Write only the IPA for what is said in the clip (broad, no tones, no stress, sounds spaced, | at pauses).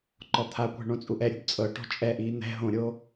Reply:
ǃ ɔ t̪ʰ a kʷ ɛ̤ ɳ õ t͡sʼ u ʔ ɛ ɾʲ ṳ b t͡sʼ ɤ ʈ ɔ̤ t͡ʃʼ ɛ ʔ iː n̪ ɛ̤ ɦ õ ɾʲ oː